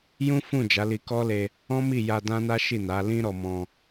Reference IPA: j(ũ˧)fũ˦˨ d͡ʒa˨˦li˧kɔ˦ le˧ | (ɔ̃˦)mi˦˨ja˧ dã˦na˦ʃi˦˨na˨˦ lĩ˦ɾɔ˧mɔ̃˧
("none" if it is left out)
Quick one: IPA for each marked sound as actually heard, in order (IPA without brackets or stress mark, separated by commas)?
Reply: ũ˦, ɔ̃˦